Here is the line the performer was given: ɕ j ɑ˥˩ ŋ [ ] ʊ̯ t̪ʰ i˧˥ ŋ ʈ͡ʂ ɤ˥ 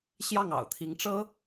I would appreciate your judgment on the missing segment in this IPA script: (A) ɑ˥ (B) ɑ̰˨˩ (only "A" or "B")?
B